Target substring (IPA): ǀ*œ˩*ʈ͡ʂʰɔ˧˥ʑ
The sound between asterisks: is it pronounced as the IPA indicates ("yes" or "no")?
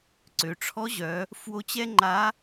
no